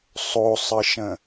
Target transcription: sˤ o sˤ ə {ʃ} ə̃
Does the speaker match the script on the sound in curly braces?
yes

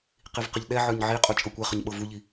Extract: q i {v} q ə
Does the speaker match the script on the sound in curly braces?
yes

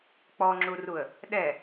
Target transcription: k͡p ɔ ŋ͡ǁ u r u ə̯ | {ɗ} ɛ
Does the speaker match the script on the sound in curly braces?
yes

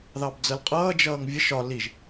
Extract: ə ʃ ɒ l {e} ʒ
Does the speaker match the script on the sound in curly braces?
no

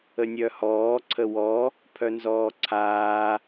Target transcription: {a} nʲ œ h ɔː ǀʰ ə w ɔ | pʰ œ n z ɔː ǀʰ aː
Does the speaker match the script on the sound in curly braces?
no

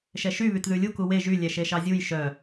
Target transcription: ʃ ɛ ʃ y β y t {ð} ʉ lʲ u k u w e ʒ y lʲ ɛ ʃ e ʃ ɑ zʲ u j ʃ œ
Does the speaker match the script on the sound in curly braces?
yes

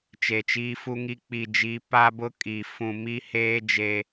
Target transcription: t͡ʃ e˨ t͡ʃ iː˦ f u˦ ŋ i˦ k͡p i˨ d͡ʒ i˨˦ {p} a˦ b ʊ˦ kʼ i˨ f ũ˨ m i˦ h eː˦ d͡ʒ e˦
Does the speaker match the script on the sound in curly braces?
yes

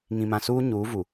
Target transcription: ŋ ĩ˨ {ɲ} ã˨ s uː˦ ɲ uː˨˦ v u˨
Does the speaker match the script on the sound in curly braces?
no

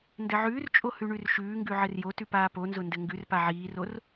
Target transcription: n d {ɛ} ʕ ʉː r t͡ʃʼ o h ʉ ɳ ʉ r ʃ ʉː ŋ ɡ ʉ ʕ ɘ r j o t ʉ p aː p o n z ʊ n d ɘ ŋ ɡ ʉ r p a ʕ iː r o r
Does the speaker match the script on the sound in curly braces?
no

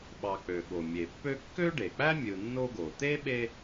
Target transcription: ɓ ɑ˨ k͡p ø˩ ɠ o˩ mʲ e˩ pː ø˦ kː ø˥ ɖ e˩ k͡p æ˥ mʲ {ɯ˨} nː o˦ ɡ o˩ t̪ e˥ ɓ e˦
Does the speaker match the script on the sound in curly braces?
yes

